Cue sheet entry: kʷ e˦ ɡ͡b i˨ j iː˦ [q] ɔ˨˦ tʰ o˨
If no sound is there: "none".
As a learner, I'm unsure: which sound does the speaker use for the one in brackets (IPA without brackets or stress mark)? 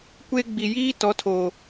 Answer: t